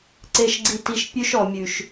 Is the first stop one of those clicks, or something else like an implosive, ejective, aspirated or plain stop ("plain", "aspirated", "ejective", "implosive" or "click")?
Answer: click